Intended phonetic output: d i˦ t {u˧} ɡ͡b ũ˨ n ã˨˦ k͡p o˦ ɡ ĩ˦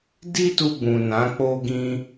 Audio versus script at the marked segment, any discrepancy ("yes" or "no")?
no